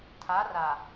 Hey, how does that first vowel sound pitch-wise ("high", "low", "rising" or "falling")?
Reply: rising